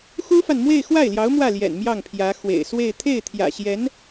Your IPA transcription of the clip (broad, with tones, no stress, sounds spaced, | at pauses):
x u˥ f a˨ n m w e˥˧ ɪ̯ x w a˥˩ ɪ̯ l j ɑ˧˥ ʊ̯ m w ä˥˩ l j ɛ̰˨˩ n m j ɑ˥˩ ŋ pʰ j ä˧˥ x w ḛ˨˩ ɪ̯ s w e˥˧ ɪ̯ t̪ʰ e˥˩ ɪ̯ t̪ʰ j ä̰˨˩ ɕ j ɛ˧˥ n